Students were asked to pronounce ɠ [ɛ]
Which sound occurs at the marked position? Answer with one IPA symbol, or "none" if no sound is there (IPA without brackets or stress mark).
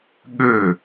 ø